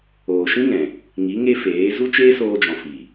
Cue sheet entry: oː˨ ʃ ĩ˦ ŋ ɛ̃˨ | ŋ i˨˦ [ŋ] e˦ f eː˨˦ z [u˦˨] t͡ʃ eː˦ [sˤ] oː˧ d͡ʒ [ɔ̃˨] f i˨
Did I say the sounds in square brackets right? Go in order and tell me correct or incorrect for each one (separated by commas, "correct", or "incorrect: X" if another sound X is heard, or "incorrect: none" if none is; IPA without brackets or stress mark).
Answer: correct, incorrect: u˦, incorrect: s, correct